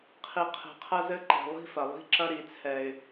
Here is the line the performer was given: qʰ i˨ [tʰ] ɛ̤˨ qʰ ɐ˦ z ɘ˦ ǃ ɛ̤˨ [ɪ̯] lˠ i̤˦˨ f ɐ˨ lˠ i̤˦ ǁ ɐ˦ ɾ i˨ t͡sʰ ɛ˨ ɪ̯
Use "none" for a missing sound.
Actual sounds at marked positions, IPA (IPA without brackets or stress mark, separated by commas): qʰ, none